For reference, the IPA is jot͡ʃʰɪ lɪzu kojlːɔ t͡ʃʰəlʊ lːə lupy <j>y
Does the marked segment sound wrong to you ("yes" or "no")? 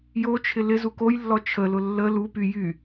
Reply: no